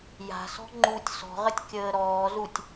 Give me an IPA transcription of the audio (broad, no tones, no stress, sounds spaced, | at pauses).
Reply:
j a̤ s ɔ̤ ŋ͡ǃ u tʲ s ɔ̤ ʁ ə tʲ kʲ əː ɾ ɔː z u tʲ